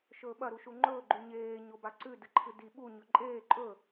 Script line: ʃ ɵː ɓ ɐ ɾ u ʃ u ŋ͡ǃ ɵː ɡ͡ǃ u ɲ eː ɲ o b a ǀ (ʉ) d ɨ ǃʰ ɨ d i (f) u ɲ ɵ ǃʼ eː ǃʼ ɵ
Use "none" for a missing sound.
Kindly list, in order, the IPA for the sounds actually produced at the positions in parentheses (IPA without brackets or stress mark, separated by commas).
ʉ, ɓ